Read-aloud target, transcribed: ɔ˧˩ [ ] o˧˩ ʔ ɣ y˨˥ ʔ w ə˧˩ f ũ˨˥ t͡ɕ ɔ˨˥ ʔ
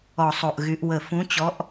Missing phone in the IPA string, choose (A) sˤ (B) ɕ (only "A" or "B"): A